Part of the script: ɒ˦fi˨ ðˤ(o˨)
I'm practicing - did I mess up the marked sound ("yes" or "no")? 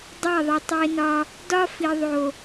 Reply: no